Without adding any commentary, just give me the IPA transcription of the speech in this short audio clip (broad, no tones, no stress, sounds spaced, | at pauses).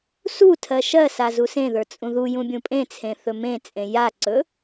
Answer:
s u tʰ ɜ ʃ ɜ s a z u s ẽ ð ə˞ t͡sʼ ũ ð u j ũ bʲ ũ pʼ ẽ t͡sʰ ẽ θ ɵ m ẽ t͡sʼ ẽ j a ǀ ɵ